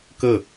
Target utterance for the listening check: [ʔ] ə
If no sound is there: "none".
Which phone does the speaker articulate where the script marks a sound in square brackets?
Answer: k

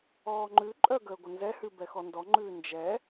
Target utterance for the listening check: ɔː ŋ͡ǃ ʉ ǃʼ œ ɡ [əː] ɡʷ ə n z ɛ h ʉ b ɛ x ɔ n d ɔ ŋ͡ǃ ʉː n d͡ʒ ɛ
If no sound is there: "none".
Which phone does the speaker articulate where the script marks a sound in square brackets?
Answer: əː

